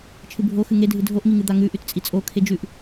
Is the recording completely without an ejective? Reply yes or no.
no